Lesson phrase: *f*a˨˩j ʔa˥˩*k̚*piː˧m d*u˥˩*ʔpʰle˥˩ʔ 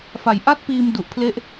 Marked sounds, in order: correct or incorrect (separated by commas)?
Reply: correct, incorrect, incorrect